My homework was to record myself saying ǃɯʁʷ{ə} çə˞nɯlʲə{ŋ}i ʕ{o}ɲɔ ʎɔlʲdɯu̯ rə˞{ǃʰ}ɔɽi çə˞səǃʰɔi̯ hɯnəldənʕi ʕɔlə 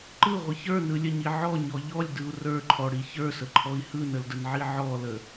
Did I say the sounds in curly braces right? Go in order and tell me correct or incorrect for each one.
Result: correct, incorrect: ɲ, incorrect: ɔ, correct

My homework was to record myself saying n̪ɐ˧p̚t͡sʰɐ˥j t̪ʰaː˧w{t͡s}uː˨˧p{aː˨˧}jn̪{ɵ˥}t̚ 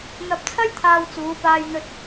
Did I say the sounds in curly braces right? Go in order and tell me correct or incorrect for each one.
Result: correct, incorrect: aː˧, incorrect: ɵ˧

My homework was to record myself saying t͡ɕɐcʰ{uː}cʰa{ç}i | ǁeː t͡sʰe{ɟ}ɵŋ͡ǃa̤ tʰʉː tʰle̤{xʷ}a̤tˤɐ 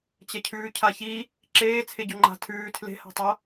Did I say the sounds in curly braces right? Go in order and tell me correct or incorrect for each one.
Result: incorrect: ʉː, correct, correct, incorrect: h

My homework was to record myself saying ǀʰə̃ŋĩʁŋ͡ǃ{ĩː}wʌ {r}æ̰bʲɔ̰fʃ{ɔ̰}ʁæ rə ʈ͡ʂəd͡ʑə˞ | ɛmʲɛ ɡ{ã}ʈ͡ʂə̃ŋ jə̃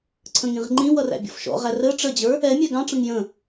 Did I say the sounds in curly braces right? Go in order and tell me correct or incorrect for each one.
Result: incorrect: ĩ, correct, correct, incorrect: ɑ̃

